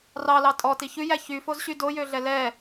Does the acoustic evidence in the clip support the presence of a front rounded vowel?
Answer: yes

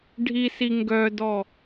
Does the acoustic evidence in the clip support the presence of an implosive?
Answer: no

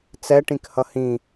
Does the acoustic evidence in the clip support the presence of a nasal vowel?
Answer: yes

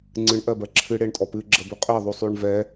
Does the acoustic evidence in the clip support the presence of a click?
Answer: yes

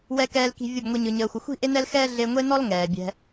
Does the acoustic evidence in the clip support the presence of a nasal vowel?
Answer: no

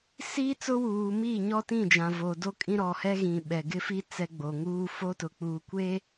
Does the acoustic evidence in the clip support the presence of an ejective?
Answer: yes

